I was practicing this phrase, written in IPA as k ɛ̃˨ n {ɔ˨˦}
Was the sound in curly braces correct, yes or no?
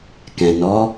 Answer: yes